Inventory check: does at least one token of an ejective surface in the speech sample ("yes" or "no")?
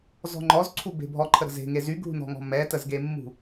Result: no